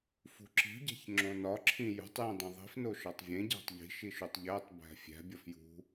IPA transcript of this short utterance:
f ṳ ǁ i̤ ɟ æ̤ ç ŋ͡ǁ õ n ɒ ǁʰ ĩ j ṳ tˤ j ĩ dˤ ĩ ðˤ i̤ f n o ʃ ɒ tˤ vʲ ẽ ɟ æ̤ tˤ ʎ i̤ ʃ i ʃ u tˤ ʎ æ tˤ b æ̤ fʲ æ̤ bʲ ɒ f j ṳ

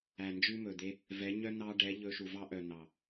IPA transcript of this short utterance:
æ˨ n d͡ʒ ʉ˦ m ɵ˨ d̪ e˦ | v ɛ˨˦ ɲ œ˦ n̪ ɑ˦ ɖ ɛ˨˦ ʎ ɵ˧ ʃ u˨ v ɑ˦ ʔ œ˨ n̪ ɑ˨

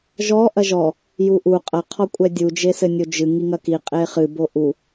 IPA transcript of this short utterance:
ʒ ɔ ʔ ɐ ʒ ɔ | j u ʔ u qʼ ɐ qʰ ɔ kʷʼ ɛ dʲ u d͡ʒ e s ɘ nʲ o d͡ʒ ɨ ŋ i ŋ ɐ k i qʼ e χ ɨ b o ʔ u

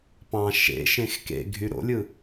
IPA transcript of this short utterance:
p ɑ̃ ʃ ḛ ʃ ẽ x k ḛ ɡʱ y ɾ o̰ lʲ ɯ

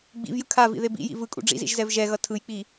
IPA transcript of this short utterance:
ɡ͡b ḭ v j ɯ kʰ a v ḭ ð e b ḭ j ḭ v ɯ kʼ ṵ ɖ͡ʐ ḭ z ḭ ʒ z ɛ v ʒ ɛ ɣ ʌ tʰ ɯ j k͡p i

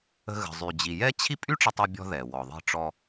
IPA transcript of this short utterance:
ə̤˧ ɣ ə̤˩ zˤ y˩ d͡ʑ i˩ j ɛ˥ t͡ɕʰ i˥ pʼ y˥ ʈ͡ʂ ə˧ tˤ ɛ˧ bʲ ɔ̤˧ ð ɛ˩ w ɔ˩ ðˤ i̤˧ ʈ͡ʂ ɔ˧

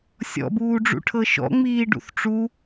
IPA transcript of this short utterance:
sʲ ɔ̰ b uː ɖ͡ʐ ṵ ʈʰ ɤ ʃ ɔ̰ ŋ͡m iː ɖ ṵ θ ʈ͡ʂ u

